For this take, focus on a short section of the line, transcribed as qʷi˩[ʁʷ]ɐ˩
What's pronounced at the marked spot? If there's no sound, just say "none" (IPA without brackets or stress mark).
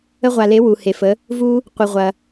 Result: ʁʷ